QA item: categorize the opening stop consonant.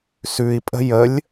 ejective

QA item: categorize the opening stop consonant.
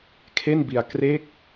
aspirated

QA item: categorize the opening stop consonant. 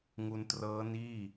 plain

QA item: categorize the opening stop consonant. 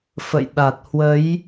implosive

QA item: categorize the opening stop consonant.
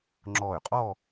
click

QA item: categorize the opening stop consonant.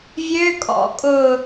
ejective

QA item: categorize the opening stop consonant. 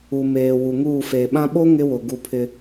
implosive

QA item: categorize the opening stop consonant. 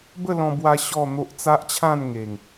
plain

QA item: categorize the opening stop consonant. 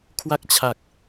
aspirated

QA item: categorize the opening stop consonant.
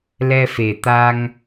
plain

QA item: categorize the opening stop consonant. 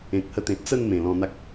plain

